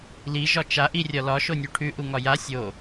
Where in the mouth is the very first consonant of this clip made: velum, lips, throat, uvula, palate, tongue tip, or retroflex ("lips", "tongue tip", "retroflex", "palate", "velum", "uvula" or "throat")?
tongue tip